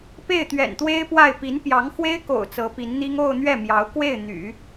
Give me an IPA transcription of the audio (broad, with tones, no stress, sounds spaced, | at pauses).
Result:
p e˥˩ ɪ̯ t̪ ɥ ɛ̰˨˩ n t̪ w e˥ ɪ̯ p w a˥˩ ɪ̯ p i˧˥ n p j ɑ˧˥ ŋ x w e˥ ɪ̯ k o̰˨˩ ʊ̯ t͡s ɤ˧˥ p i˧˥ n n̪ i˥ ŋ o˥˧ ʊ̯ n̪ ɥ ɛ˥˩ m j ɑ˧˥ ʊ̯ k w e˥˩ ɪ̯ n̪ y̰˨˩˦